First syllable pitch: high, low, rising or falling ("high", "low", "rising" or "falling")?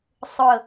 low